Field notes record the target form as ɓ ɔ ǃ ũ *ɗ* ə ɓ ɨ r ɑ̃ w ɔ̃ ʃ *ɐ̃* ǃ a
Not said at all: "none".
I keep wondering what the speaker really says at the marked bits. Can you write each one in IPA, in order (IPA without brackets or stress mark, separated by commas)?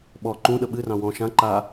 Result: ɗ, ã